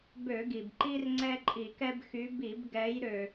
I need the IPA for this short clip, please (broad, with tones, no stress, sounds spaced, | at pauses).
b ø˧˩˧ ɡ i˩ b ǃ i˦ r ŋ͡ǀ ɛ˦ ǃʼ i˧˩˧ k ɛ˦ b x y˨˦ b i˧˩˧ b ɡ ɛ˨˦ j ɾ ø˩